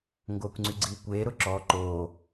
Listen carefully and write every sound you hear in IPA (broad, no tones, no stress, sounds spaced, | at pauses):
ŋ ɡ oː kʷ ŋ͡ǀ y ɡ͡ǀ iː kʷ eː ɾ ʊ ǁ ɔ ǃ oː